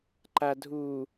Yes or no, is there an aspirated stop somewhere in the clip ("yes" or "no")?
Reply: no